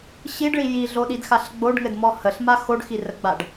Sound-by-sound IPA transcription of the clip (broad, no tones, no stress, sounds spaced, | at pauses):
ɕ i ɖ ɭ i j i ɮ o ɗ i d x a ɬ ɡ͡b o ɖ ŋ ɘ d m ɔ h ə ɬ m a x o ɖ x i r ə ɡ͡b a ɖ